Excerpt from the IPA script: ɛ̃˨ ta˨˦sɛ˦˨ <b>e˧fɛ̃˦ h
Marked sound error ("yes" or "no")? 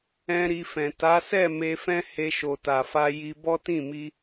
yes